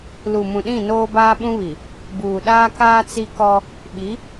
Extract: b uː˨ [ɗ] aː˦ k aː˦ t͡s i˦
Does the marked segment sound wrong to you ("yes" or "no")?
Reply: no